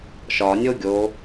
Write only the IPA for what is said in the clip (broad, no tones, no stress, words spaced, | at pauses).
ʃɒnʲo ɡʲo